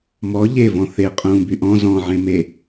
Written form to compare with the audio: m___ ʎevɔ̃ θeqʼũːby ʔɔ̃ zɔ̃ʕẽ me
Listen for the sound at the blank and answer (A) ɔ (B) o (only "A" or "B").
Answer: A